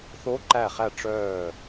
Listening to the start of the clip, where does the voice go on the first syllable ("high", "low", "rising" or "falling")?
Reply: rising